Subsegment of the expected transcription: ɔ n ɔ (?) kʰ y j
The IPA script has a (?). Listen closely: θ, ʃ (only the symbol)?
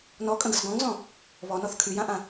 θ